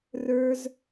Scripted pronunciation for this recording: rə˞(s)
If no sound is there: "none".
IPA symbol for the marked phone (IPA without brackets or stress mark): z